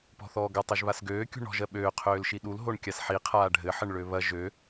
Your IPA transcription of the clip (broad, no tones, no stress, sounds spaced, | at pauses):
p ɔ̤ θ ɔː ɡ ɐ tˤ ø ʒ β a s ɡ øː kʲ ṳ ɳ ɔ̤ ʒ ɜ ɓ øː qʰ øː l ʃ i ɗ u l ɦ o ɳ kʲ a s ħ i qʰ aː ɖʱ ɘ ħ ɘ ɳ ɭ ø β ɐ ʒ ø